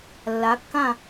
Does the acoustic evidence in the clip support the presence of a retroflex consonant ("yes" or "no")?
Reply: no